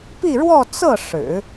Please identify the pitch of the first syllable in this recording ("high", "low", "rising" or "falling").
falling